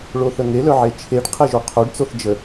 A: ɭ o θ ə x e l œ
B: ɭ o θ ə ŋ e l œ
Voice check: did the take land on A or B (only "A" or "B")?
B